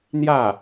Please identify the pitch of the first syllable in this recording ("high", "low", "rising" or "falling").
falling